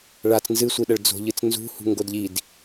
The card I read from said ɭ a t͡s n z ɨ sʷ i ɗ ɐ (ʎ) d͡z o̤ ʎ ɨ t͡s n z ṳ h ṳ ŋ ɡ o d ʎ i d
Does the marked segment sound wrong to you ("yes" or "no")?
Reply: yes